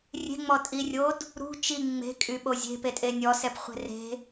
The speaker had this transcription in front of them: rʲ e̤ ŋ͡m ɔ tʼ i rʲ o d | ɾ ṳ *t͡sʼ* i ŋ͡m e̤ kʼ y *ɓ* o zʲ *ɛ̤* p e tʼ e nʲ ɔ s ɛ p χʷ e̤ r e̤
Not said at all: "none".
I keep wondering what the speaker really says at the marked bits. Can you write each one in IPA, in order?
t͡ʃ, ɓ, e̤

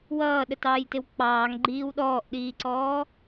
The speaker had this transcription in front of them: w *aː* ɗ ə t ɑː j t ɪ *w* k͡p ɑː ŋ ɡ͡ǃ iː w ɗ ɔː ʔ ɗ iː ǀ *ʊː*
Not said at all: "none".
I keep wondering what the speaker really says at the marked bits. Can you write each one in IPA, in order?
ʌː, w, ɔː

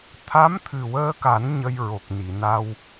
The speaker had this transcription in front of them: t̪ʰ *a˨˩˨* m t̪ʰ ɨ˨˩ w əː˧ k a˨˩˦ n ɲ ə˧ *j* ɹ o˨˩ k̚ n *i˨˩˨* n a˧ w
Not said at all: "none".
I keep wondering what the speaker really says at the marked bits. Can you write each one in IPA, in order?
a˧˥, j, i˨˩˨

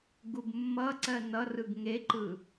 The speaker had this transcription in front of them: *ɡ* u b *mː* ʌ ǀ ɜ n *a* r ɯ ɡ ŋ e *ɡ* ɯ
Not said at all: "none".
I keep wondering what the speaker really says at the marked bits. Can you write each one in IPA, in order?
ɡ, mː, ʌ, ǃ

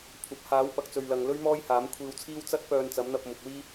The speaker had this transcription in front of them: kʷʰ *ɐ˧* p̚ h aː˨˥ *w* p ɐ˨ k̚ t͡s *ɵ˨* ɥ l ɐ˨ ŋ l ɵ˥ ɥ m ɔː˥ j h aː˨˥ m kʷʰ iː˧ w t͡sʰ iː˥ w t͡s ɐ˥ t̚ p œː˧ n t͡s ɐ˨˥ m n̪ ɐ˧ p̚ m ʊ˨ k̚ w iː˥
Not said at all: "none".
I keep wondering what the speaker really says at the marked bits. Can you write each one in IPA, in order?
ɐ˨, w, ɵ˨

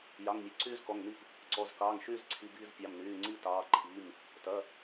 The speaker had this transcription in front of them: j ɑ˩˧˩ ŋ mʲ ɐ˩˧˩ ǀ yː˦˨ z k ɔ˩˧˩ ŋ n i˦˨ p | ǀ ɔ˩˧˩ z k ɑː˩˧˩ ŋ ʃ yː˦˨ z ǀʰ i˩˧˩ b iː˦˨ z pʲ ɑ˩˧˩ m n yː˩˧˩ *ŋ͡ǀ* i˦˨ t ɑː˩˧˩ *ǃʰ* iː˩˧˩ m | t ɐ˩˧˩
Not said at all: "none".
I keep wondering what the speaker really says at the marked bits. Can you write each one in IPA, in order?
ŋ͡ǀ, ǃʰ

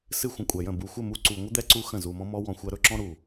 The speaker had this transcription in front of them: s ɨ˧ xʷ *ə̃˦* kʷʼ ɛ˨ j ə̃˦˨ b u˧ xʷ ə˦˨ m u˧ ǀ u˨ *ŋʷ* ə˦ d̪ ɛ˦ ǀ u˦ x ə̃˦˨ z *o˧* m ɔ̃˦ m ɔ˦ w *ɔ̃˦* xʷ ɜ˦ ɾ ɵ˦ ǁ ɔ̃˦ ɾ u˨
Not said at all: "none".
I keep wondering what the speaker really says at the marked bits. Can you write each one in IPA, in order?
ə̃˨, ŋʷ, u˧, ɔ̃˧

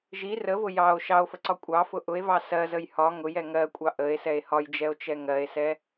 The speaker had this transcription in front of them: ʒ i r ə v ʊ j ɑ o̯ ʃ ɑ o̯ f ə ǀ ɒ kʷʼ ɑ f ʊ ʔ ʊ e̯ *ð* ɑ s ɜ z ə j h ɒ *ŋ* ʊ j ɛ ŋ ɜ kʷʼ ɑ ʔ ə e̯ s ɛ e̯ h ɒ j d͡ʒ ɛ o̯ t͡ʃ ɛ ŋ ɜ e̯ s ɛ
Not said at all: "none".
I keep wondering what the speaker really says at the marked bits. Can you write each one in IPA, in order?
v, ŋ

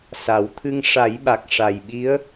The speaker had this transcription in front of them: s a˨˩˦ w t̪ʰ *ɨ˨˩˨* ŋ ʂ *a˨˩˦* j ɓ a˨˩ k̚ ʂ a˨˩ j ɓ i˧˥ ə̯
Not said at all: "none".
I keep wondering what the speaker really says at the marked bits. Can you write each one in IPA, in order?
ɨ˧, a˨˩˦

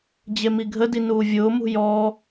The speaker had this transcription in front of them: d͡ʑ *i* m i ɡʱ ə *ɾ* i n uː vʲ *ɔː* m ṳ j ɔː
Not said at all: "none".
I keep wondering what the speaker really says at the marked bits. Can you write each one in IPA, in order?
e, d, ʊː

